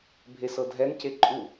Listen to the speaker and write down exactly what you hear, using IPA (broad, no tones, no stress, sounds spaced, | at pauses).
bʱ e s ɤ dʱ ɛ n c e ǃʼ u